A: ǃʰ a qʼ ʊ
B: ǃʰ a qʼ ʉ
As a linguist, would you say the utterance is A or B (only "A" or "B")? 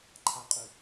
B